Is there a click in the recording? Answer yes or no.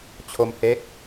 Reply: no